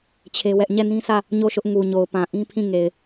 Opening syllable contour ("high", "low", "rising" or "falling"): high